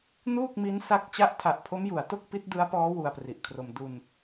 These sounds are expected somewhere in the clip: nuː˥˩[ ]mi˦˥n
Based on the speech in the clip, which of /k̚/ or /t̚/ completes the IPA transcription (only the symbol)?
k̚